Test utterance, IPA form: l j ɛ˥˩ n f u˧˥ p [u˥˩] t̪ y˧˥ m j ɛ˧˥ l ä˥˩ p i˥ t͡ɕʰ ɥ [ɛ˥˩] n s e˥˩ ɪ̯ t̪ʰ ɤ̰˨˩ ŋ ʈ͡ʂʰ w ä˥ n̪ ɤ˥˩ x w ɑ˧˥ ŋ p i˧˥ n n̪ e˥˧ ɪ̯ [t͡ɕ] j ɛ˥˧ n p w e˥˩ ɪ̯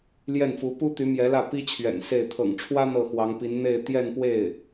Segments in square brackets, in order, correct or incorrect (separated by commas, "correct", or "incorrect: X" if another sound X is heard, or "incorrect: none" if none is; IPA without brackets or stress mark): incorrect: u˥, incorrect: ɛ̰˨˩, incorrect: t̪